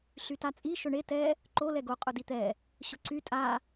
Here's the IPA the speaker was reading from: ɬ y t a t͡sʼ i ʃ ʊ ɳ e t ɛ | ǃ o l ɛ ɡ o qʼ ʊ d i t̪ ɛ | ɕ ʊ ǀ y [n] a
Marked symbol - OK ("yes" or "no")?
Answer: no